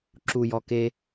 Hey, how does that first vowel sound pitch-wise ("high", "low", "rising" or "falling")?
low